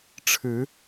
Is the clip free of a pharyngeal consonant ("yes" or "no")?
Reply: yes